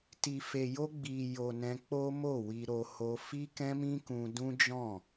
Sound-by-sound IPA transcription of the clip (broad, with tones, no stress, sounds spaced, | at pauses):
t i˨ f e˨ j o˧ ɡ͡b i˨ j o˨ n ɛ̃˧ k͡p o˦ m o˦˨ w i˧ ɾ o˧ h o˧ f i˦ k ɛ̃˦ m ĩ˦ k ũ˧ d ũ˦ d͡ʒ ɔ̃˦˨